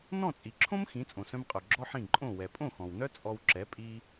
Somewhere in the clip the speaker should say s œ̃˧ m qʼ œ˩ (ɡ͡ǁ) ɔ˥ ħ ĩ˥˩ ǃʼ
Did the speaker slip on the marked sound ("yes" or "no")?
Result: no